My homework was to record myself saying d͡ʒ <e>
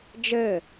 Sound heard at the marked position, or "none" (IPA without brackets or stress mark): ɘ